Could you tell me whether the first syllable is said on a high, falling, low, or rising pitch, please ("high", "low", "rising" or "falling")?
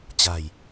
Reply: low